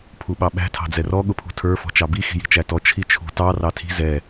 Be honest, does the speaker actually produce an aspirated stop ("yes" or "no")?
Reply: yes